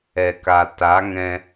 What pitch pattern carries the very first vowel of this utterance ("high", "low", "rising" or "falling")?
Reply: low